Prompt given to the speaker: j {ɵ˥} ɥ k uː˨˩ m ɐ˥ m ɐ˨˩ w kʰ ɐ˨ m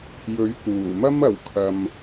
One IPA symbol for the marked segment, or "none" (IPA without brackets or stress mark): ɵ˨˥